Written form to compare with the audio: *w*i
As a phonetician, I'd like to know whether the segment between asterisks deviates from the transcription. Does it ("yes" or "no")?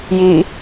yes